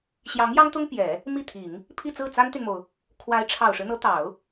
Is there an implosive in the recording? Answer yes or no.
no